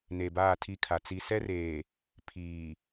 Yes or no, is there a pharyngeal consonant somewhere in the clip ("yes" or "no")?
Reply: no